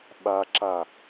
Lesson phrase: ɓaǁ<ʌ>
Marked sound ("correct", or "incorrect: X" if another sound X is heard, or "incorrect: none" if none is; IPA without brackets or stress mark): incorrect: a